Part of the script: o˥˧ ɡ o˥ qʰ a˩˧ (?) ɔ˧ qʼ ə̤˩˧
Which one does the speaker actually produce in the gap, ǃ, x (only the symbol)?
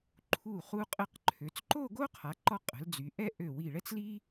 ǃ